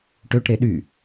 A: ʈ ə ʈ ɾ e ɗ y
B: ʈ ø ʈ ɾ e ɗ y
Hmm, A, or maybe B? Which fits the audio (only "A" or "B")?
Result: B